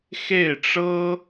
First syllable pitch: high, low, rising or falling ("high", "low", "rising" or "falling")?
falling